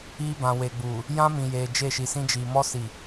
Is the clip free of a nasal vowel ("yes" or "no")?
no